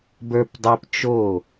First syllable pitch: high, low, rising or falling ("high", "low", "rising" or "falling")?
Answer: high